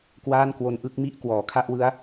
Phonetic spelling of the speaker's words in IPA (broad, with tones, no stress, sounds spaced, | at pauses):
k w aː˥˩ n k w o˧ n ʔ ɯ˥˩ k̚ m i˥˩ ʔ k w ɔː˩˦ kʰ a˥˩ ʔ w ɯ˦˥ a̯